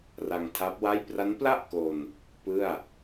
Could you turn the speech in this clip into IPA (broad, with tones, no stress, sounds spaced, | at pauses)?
r a˧ ŋ tʰ a˦˥ p̚ w a˥˩ j p r a˦˥ n p l a˥˩ ʔ k o˧ n | p ɯ˥˩ a̯